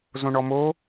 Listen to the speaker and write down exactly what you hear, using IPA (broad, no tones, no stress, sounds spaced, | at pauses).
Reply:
z õ ɳ ɔ m o